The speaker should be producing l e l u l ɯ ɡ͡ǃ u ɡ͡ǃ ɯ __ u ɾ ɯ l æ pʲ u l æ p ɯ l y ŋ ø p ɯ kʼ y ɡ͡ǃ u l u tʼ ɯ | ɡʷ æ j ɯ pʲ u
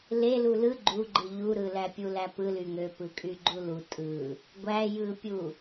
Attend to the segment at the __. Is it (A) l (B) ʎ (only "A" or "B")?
B